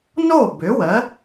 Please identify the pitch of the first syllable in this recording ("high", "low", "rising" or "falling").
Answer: falling